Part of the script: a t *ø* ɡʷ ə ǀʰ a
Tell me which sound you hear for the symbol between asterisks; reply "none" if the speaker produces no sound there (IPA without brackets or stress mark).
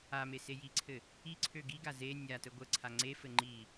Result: ə